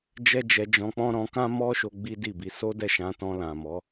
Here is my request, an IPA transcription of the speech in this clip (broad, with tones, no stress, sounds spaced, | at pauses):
d͡ʒ ɛ˦ d͡ʒ ɛ˧ d͡ʒ ɔ̃˧ k͡p ɔ̃˦ ɾ ɔ̃˧ k ã˦ m ɔ˦ ʃ o˧ ɡ͡b i˦ d i˦˨ b i˨˦ s o˦ d ɛ˦˨ ʃ ã˧ t ɔ̃˧ l ã˨ m ɔ˨˦